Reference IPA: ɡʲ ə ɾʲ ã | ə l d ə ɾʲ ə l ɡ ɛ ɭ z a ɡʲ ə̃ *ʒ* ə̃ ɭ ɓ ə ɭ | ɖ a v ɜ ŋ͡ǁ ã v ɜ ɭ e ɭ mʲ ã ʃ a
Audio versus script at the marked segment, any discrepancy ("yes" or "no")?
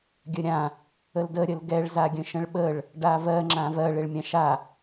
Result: yes